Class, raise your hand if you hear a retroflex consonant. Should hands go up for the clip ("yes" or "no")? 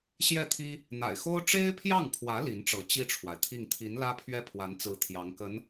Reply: yes